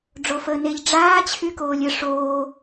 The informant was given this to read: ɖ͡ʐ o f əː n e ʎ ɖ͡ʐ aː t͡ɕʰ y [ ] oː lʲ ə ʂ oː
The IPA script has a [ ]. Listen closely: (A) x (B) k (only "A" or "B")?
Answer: B